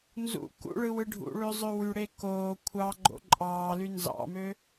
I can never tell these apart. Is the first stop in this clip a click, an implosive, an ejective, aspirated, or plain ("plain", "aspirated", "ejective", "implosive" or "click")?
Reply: plain